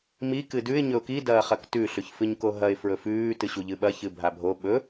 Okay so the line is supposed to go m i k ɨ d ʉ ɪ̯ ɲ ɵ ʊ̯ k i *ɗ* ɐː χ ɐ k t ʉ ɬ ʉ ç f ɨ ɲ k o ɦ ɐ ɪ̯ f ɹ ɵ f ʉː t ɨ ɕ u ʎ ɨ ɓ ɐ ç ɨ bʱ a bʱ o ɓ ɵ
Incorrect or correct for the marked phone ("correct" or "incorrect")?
incorrect